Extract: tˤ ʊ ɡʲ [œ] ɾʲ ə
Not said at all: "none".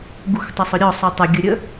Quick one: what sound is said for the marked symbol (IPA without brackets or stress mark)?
ə